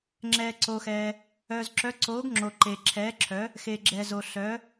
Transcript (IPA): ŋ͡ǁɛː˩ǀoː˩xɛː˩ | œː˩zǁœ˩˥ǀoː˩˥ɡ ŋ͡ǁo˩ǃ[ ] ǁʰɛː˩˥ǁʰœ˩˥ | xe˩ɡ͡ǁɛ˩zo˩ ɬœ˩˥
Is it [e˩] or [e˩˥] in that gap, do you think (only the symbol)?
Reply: e˩